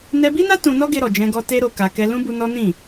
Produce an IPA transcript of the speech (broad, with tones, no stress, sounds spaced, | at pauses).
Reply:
n ɛ˧ b i˦ n a˦ t ũ˧ n ɔ˦ ɡ e˧ ɾ ɔ˨ d͡ʒ ɛ̃˧ ɡ ɔ˧ t e˧ ɾ o˧ k a˧ k ɛ˦ l ũ˦ b u˧ n ɔ˦ n ĩ˦˨